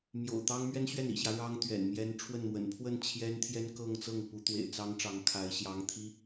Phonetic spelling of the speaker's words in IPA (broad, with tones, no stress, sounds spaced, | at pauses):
m j o̰˨˩ ʊ̯ t̪ ɑ˥ ŋ m ɥ ɛ˥ n ɕ ɥ ɛ˥˩ n ḭ˨˩ ɕ j ä˦ ɻ ɑ˥ ŋ t̪ ɥ ɛ̰˨˩ n m j ɛ˥ n ʈ͡ʂʰ w ə˥˩ n m w ə̰˨˩ n pʰ w ə˥˩ n t͡ɕʰ j ɛ˥ n t̪ʰ j ɛ˥ n k ɤ˥˧ ŋ t͡s ɤ˥˩ ŋ p u˧˥ t̪ w ḛ˨˩ ɪ̯ t͡s ɑ˥ ŋ ʈ͡ʂ ɑ˧˥ ŋ kʰ a˧˥ ɪ̯ ɕ j ɑ˧˥ ŋ t̪ʰ i˧˥